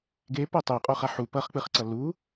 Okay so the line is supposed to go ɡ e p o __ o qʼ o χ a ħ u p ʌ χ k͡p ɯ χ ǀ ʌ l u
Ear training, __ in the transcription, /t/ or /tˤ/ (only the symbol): tˤ